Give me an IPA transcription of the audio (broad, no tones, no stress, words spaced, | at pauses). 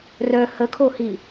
rœ həkʰohi